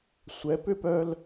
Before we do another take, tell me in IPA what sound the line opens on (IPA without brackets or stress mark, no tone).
sʷ